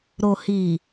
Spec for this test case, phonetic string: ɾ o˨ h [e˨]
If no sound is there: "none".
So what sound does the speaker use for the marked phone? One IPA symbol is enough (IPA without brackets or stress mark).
i˨